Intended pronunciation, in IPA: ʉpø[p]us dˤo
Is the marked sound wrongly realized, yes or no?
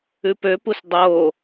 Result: no